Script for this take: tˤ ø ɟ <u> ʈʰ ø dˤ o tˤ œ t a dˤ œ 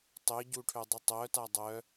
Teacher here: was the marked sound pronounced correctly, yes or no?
yes